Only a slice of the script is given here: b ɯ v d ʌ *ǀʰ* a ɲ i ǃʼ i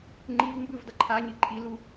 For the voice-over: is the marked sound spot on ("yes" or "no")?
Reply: no